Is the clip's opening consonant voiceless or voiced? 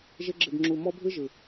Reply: voiced